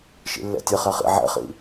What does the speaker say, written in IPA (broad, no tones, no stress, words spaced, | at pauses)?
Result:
ʃḭlːɛ̰tʲɘ χɛχḭ ʕɛ̰χḭ